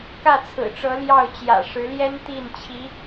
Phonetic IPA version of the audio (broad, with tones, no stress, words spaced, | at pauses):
kä˥˩t͡sʰɹ̩˨˩ʈ͡ʂɤ˧˥ ljɑ˥˩ʊ̯ t͡ɕjä̰˨˩ʂɻ̩˧˥ljɛ˥n t̪i˥˩nt͡ɕʰi˧˥